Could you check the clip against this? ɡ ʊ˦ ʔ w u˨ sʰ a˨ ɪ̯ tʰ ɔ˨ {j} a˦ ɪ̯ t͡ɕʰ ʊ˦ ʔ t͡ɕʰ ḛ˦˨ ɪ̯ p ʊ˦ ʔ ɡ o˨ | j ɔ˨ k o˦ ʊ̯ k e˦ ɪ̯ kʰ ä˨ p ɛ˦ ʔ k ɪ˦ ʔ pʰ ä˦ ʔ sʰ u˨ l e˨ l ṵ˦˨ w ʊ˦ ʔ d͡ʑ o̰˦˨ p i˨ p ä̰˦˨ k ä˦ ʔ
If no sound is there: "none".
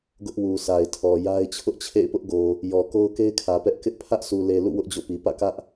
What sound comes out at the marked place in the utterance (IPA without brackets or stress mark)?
j